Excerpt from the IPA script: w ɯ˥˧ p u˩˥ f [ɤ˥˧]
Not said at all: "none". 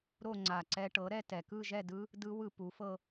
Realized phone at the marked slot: ɤ˥˧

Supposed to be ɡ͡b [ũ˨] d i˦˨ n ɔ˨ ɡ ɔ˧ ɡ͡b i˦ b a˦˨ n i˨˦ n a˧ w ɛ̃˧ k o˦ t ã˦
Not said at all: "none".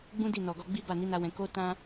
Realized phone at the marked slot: ũ˦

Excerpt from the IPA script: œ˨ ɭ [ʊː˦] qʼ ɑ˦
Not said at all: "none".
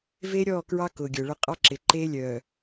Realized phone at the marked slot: ʊ˦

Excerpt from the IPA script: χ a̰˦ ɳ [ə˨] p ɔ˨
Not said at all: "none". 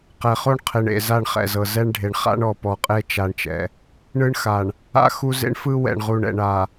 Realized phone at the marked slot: ɔ˨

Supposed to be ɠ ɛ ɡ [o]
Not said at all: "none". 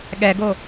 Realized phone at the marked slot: o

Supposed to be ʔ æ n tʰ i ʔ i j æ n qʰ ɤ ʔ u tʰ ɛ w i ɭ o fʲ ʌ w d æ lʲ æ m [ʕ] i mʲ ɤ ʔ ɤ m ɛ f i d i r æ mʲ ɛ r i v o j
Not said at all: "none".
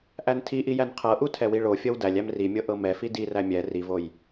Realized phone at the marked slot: r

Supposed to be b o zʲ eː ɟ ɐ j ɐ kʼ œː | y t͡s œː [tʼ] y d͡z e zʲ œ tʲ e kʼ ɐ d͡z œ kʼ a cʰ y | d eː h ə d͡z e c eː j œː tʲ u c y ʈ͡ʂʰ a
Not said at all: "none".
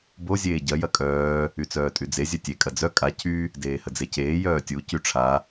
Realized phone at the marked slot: tʼ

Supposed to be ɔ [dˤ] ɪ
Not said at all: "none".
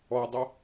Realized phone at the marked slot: dˤ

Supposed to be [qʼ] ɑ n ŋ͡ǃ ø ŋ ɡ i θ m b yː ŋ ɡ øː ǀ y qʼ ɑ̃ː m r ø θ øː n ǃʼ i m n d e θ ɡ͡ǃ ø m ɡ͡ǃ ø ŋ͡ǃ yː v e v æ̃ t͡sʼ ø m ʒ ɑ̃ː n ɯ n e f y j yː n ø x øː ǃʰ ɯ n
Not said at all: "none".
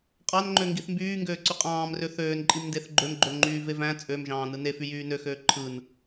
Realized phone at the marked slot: qʼ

